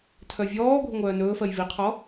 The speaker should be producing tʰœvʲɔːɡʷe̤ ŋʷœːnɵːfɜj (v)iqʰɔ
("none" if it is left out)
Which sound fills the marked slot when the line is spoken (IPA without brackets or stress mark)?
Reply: v